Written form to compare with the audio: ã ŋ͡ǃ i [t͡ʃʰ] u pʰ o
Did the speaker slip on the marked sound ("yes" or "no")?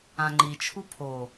no